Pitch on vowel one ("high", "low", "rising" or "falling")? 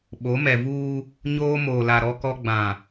rising